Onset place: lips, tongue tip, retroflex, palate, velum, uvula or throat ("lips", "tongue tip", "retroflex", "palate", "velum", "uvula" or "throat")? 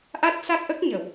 throat